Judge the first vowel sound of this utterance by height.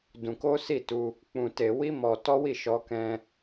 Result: high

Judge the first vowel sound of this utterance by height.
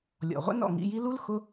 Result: mid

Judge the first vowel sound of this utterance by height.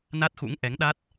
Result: low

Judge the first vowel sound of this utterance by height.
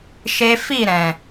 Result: mid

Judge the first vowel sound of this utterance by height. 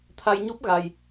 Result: low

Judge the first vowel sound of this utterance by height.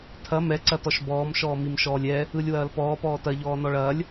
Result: low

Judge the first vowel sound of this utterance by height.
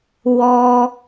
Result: mid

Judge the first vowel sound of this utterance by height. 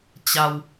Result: low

